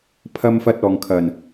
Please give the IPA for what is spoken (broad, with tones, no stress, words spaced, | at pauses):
pʰɐ˧mfɐ˧t̚ ɔː˨ŋkʰɐ˨˩n